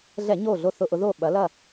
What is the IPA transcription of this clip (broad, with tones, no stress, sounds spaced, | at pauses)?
ɮ ɛ˧˩˧ ɲ o˧˩ ɮ o˧˩ θ ʊ˧˩˧ ʔ ʊ˩˧ ð o˧˩ ɓ ɐ˩˧ l ɐ˧˩